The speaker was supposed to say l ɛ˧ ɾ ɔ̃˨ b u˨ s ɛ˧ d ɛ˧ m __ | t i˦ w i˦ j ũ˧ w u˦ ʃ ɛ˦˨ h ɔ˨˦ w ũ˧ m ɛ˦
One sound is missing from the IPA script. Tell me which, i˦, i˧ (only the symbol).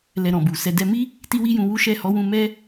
i˦